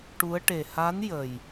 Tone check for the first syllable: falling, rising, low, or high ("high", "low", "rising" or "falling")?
rising